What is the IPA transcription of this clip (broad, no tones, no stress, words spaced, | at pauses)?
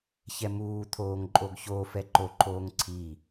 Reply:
çɛmuːt̪ʰoːŋ ǃʼoɡçoːfɛ ǃoǃʰoːŋ ǀʰi